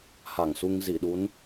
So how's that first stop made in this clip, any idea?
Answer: implosive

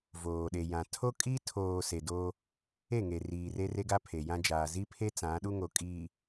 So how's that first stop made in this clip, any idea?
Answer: implosive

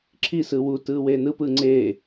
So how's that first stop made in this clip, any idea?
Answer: click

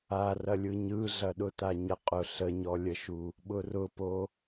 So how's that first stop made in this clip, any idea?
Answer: implosive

